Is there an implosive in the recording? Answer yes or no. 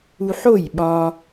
yes